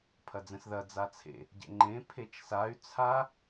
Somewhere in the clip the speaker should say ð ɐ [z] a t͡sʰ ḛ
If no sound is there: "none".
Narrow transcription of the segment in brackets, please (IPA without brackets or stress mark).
d͡z